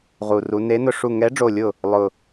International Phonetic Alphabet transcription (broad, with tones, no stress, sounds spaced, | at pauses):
ʁ u˧˩ r u˨˥ n e˨˥ n ʊ˧˩ ʂ u˧˩ ŋ ɛ˨˥ ɖ͡ʐ o˧˩ lʲ ʊ˧˩ | lˠ ʊ˧˩